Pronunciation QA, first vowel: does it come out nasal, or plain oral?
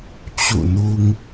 oral